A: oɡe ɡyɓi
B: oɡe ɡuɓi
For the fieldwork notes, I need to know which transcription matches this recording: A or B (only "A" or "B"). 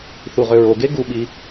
B